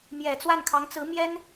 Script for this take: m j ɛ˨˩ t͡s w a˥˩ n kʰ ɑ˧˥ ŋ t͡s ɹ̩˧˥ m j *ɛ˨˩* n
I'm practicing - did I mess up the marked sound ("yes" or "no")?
yes